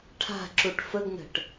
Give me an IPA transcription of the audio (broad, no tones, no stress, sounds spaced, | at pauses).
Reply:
ʈʰ a̤ ǁ u ʈ f ə ɡ n ə̤ ʈ